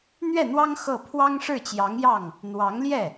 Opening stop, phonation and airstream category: aspirated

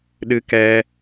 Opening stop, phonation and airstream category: implosive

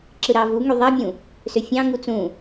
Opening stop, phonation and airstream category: click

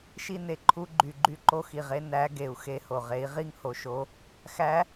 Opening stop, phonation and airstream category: click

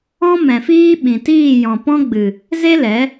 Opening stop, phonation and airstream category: implosive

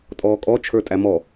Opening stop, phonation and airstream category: ejective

